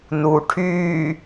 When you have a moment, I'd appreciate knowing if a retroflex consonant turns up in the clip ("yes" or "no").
yes